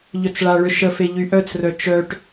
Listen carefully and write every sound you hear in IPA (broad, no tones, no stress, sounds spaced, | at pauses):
ʎ œ t͡s ɭ a ɭ ʏ ʃ ə f e ʎ y ʔ œ t͡s r œ t͡ʃ œ ʈ